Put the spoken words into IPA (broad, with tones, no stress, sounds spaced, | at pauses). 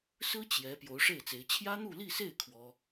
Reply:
s ɹ̩˥ t͡ɕ j ɛ˧˥ p j o˧˥ ʊ̯ ʂ e˥˩ ɪ̯ t͡s e˧˥ ɪ̯ t͡ɕʰ j ä˥ n̪ u˥˧ l i˥˧ s e˥˩ ɪ̯ kʰ w ɔ˥